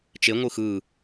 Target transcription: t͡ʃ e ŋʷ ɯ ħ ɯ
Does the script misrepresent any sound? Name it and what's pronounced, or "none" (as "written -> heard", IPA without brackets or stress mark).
ħ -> x